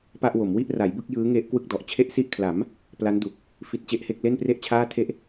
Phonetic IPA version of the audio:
p a˥˩ ʔ w o˩˦ m w i˥˩ ʔ r a˩˦ j b ɯ˥˩ k̚ j ɯː˦˥ ŋ e˦˥ ʔ k w ɯ˥˩ k̚ d ɔ˨˩ ʔ t͡ɕʰ e˦˥ ʔ s i˦˥ ʔ kʰ l a˩˦ m | p l a˦˥ n d u˨˩ k̚ | f i˦˥ t̚ t͡ɕ e˦˥ ʔ h e˥˩ k̚ l e˥˩ n p r e˥˩ ʔ t͡ɕʰ aː˥˩ tʰ e˥˩ ʔ

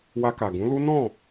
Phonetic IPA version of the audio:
w a˧ k a˨ ɡ ũ˨˦ l u˦ n ɔ̃˦˨

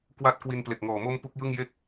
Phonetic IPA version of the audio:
k w a˦˥ t̚ k w i˧ n p l e˨˩ k̚ ŋ ɔː˨˩ m o˦˥ m p u˦˥ k̚ j ɯ˥˩ ŋ j e˥˩ k̚

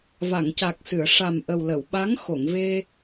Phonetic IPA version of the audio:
v a˨˩˨ ŋ c a˨˩ k̚ s ɨ˨˩˨ ə̯ ʂ a˨˩ m ʔ ə˨˩ w l ə˨˩˨ w ɓ a˧˥ ŋ x o˨˩˨ ŋ v e˧

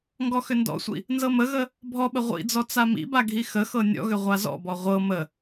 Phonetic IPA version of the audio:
ŋ ɡ ɔ x ʏ n d ɔ̰ sʷ ḭ | n z ɤ m ə ɣ ə | bʱ ɔ ɓ ə ʁʷ ḭ d͡z ɔ t͡s a m ḭ b a ɡʱ i x ə x ɤ nʲ ɔ̰ ɣ ʏ ʁʷ a z ɔ̰ b ɔ ʁʷ ɤ m ə

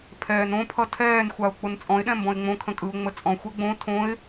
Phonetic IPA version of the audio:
pʰ ɛː n õ pʰ ʌ tʰ ɛː n xʷ a ʊ̯ k͡p ʊ n t͡sʼ ɔ̃ ɪ̯ ɗ ɛ̃ m b ɔ̃ ɪ̯ ŋ͡m õ kʰ ə̃ kʼ ɯ ʊ̯ ŋ͡m ə t͡sʼ ɔ̃ xʷ ɛ ɡ͡b õ tʰ õ ɪ̯

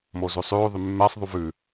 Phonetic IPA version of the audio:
m o z ʉ sˤ ʉː ðˤ y mː ɛ sˤ ðˤ u v ʉ

